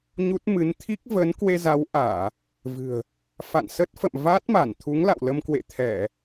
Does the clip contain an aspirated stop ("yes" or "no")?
yes